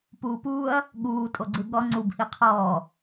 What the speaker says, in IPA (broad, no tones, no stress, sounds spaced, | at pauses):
p uː p uː ɐ̯ | ɠ uː tʼ o ɡ͡ǀ ɯ ɠ ɔ ŋ͡ǀ u b h i qʰ ɔː